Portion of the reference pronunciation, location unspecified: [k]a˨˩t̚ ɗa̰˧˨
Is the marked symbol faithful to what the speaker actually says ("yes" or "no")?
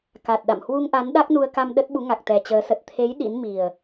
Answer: yes